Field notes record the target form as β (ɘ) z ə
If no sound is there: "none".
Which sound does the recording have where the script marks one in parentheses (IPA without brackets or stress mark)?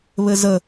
ɘ